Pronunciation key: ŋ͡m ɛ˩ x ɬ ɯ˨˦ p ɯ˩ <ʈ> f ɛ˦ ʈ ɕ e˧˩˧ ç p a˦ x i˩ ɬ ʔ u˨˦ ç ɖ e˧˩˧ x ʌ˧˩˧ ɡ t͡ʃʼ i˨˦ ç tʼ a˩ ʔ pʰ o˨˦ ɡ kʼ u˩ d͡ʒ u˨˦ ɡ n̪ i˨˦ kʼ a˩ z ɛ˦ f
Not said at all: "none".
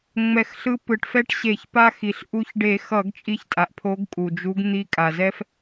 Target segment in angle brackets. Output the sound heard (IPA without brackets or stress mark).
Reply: ʈ